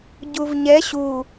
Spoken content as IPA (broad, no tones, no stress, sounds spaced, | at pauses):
ɟ u v ɲ ɛ ɕ u